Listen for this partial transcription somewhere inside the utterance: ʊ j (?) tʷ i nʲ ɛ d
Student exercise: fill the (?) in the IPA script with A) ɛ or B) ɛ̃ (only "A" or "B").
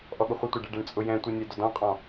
B